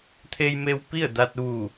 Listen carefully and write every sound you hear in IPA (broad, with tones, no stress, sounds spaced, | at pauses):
t̪ʰ e˧ j m e˧ w p i˥˨ ə̯ d a˧ t̚ ʋ uː˧˩